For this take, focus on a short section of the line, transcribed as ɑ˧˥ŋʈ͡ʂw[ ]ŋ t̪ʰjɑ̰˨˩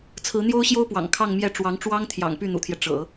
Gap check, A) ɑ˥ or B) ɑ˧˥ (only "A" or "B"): A